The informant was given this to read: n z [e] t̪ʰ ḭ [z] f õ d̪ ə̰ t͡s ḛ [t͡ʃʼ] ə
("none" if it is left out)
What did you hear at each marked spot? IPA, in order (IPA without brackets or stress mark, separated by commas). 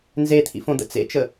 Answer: e, none, t͡ʃ